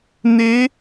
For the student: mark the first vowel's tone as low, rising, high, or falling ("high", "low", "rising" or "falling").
rising